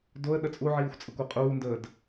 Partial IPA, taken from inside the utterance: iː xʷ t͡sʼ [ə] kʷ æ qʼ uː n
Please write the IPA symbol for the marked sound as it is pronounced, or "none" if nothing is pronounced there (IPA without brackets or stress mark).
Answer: ə